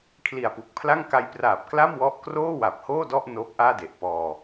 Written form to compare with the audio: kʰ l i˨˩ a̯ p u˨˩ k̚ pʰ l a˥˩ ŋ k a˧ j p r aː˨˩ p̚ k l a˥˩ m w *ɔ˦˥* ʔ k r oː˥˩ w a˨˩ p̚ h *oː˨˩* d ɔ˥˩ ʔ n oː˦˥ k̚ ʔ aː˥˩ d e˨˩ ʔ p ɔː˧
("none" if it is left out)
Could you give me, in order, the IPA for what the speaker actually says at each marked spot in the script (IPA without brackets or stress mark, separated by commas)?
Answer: ɔ˦˥, oː˥˩